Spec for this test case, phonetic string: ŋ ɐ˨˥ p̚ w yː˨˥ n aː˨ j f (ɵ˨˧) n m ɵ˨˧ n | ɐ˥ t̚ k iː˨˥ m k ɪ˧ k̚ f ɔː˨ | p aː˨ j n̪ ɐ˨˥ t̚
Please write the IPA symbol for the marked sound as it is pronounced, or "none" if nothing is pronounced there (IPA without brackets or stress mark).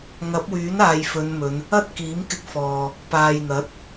ɵ˨˧